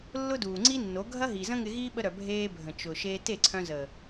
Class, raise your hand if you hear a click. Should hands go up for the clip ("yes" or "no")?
yes